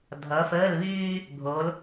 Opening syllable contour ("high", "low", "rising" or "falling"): rising